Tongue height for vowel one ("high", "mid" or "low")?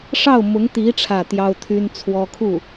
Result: low